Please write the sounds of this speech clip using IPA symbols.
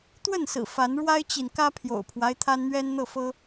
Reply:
t̪wə˥˨nsɹ̩˨˩ fa˨˦n ɻwa˦ɪ̯t͡ɕi˨nkä˦ pʰjo̰˨˩ʊ̯pʰwa˦ɪ̯ t̪ʰa˦nn̪ɥɛ˦nn̪ɤ˥˨fɤ˦

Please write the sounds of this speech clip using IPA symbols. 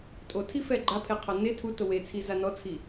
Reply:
tʼotʰifɛ ɡ͡ǃapʰeqʰɔ ne tʰuto wet͡sʰiza nɔt͡sʰi

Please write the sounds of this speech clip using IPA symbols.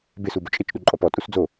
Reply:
bɪsu bʊt͡ʃʼɪt͡ʃ ɗuǃʼɔpɔ tʼusd͡zo

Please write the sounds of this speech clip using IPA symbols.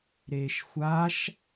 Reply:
ɾeːʃxʷaʃ

